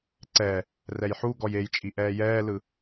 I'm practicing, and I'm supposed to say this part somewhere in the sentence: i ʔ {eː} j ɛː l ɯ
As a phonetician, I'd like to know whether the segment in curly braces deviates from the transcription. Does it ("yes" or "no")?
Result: yes